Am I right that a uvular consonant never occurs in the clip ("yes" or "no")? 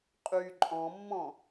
no